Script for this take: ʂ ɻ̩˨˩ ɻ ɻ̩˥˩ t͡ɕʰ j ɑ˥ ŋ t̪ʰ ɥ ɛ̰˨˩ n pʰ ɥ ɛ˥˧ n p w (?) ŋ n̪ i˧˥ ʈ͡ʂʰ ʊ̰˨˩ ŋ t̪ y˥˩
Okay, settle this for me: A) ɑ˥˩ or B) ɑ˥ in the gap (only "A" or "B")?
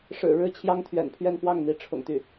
A